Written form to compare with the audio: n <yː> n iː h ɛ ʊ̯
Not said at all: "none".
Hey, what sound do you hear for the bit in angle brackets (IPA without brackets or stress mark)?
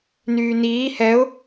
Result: yː